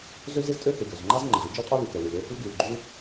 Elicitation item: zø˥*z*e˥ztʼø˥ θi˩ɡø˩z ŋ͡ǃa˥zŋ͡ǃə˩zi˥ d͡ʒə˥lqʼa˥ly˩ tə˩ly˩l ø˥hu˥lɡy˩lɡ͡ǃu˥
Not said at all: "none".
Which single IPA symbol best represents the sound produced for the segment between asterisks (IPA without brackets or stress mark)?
z